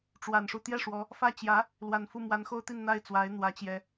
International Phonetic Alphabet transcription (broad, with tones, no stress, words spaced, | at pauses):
ʈ͡ʂwa˨˩nʂu˥˧ t̪jɛ˥˩ʂwɔ˧˥ | fä˥˩ t͡ɕjä˧˥ | lwa˨˩nfu˥˩ mwa˧˥nxo˥ʊ̯t̪i˥˧n n̪a˥˩ɪ̯t͡swa˧˥ɪ̯ n̪wä˧˥t͡ɕjɛ˥